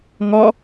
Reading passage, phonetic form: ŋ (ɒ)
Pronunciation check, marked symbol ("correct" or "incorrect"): correct